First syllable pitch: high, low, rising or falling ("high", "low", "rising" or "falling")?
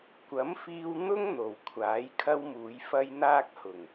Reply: rising